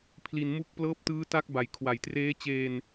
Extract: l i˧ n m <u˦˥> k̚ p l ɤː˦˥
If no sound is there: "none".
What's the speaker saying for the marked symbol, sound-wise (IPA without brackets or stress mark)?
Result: u˦˥